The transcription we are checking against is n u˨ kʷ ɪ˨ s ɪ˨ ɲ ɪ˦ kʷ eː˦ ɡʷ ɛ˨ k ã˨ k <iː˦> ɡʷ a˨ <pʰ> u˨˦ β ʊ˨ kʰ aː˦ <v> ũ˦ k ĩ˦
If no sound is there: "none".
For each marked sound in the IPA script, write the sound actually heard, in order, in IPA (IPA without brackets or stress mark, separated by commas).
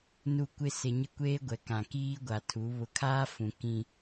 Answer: iː˦, tʰ, f